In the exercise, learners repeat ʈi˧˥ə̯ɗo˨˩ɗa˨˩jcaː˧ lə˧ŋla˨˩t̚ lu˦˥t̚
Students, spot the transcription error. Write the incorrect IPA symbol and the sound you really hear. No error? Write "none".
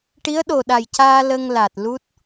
none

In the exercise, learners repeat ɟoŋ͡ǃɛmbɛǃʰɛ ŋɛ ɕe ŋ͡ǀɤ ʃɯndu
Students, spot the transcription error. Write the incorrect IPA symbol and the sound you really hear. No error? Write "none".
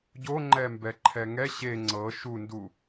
ɯ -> u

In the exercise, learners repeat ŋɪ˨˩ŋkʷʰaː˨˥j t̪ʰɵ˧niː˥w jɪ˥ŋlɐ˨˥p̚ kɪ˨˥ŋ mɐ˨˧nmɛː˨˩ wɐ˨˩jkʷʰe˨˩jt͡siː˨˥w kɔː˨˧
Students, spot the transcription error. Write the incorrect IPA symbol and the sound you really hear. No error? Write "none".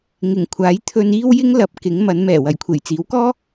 ɔː˨˧ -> ɔː˥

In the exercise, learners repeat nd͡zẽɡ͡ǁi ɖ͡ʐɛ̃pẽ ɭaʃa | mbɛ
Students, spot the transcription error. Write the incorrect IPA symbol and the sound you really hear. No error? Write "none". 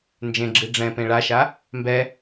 d͡z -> d͡ʒ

